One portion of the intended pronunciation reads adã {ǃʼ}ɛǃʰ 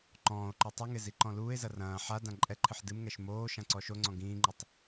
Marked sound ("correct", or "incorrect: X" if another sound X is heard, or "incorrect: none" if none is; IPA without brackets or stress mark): correct